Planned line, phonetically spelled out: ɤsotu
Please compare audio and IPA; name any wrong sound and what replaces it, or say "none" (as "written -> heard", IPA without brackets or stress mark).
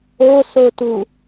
ɤ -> o